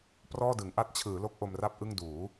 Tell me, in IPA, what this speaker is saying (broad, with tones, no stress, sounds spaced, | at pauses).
p r ɔː˥˩ d ɯ˩˦ ŋ ʔ a˦˥ t̚ t͡ɕʰ ɯː˩˦ l o˦˥ k̚ ʔ o˧ m r a˥˩ p̚ ʔ ɯ˥˩ ŋ d uː˩˦